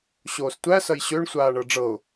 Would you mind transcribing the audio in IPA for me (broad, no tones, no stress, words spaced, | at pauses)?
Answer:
ɕoːstʷæ sɐjɕøɳ sʷaːɳɤɖ͡ʐɤʊ̯